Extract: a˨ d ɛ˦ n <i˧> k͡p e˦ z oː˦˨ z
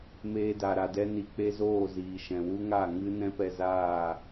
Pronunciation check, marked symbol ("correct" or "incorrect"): correct